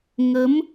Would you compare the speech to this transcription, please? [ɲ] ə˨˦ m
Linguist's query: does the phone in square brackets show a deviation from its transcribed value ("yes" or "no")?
yes